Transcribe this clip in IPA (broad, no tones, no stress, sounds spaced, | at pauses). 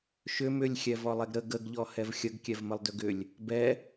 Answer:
ʃ ʏ m ʏ lʲ xʲ ɛ v ɔ lˠ ɛ ɡ ɾ ə ɡ ə ɡ ʎ ɔ h ɛ v xʲ ə ɡ kʲ ɛ v m ə lˠ d ʏ ɡ ʏ lʲ | b ɛ